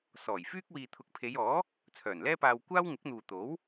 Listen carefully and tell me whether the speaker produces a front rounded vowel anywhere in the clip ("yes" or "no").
yes